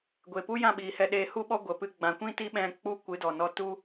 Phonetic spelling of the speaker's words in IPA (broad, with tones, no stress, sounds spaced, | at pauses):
ɡʷ e˨ p u˦ j ã˦˨ ɓ iː˨ h ɛ˧ ɗ eː˧ h u˦ ɓ ɔ˦ ɡʷ ə˨ p ɨ˧ ɡ͡b ã˨ kʷ ĩ˦ t i˦ ɓ ɛ̃˧ k͡p u˦ kʷ ɨ˨˦ d ɔ˨ n ɔ˧ t u˦